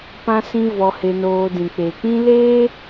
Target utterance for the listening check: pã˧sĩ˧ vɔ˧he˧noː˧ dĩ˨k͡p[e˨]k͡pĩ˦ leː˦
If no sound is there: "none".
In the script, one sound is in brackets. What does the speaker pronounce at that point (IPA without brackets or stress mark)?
e˨